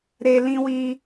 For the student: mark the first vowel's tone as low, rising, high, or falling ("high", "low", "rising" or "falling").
high